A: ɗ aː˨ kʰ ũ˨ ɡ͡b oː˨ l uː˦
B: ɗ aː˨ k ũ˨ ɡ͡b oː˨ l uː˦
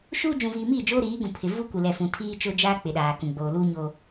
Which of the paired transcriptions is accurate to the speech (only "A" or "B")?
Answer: B